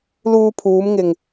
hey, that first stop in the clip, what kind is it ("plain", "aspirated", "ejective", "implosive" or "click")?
aspirated